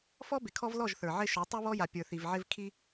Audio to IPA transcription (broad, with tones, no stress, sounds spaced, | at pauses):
f ɔ˦ b ɪ˨ kʰ ɔ˦ v l ɔ˦˨ ʒ θ ə˞˨ ʕ ɪ˦ ʃ ɔ˨˦ tˤ i˦ β ɔ˦ j a˨ pʲ ə˞˨ θ i˨ v ʕ ɪ˦ v kʰ i˦